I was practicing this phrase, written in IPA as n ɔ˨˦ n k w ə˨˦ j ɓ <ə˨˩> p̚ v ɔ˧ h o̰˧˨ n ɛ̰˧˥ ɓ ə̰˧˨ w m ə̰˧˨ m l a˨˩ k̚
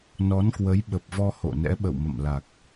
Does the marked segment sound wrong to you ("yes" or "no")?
no